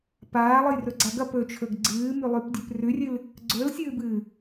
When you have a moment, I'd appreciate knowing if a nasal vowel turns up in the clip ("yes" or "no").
no